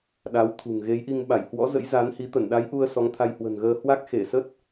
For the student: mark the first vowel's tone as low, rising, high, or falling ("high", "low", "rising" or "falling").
rising